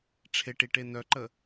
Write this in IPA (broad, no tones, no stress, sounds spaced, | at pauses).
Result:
ʈ͡ʂʰ e ʈ i ʈ e n œ ǃ ə